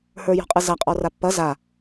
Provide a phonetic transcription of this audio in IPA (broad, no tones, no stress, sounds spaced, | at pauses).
h ə˞ j ɔ̤ qʼ ɯ z a qʼ ɔ r a pː ɐ z a